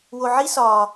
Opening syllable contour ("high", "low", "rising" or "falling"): low